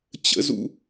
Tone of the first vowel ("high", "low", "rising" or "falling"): low